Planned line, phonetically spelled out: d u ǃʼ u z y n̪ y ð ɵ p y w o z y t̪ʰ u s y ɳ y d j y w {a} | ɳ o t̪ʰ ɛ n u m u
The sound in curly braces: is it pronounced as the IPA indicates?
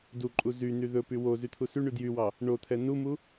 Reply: no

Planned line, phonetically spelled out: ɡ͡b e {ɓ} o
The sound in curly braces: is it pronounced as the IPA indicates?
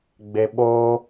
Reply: yes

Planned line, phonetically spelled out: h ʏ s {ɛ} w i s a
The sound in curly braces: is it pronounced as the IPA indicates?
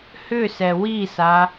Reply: yes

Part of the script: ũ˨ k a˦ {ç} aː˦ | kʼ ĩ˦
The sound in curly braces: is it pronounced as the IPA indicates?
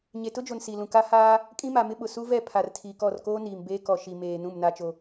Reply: no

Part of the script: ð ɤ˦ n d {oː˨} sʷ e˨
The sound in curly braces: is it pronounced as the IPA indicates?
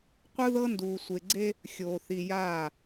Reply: no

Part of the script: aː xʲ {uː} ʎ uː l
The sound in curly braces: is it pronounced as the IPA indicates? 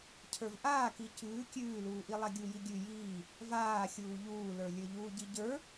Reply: yes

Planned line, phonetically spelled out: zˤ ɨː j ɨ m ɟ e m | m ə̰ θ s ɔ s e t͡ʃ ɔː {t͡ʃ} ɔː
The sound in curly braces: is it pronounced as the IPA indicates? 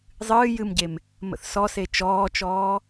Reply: yes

